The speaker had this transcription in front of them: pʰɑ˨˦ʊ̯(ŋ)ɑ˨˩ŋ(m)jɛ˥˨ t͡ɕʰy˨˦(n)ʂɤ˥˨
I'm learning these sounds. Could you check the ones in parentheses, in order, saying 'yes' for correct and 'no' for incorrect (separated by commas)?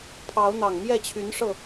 no, yes, yes